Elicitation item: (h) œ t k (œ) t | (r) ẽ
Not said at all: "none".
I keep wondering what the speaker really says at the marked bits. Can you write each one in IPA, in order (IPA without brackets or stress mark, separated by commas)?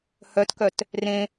h, œ, r